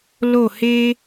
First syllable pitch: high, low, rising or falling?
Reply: falling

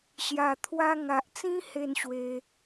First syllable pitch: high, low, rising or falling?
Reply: low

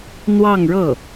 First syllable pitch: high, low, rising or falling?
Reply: falling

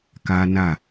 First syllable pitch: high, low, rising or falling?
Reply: high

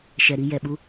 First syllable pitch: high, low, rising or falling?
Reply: low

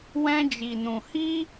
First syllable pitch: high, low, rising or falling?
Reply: high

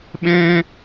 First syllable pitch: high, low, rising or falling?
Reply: high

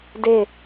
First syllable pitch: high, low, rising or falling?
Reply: falling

